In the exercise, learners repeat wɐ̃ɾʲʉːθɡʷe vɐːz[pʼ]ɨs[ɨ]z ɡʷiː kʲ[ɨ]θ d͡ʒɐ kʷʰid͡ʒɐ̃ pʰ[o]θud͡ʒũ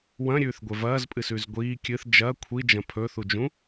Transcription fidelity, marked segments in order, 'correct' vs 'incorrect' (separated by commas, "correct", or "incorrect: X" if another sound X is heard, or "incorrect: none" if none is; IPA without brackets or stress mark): correct, incorrect: ʉ, correct, incorrect: ɵ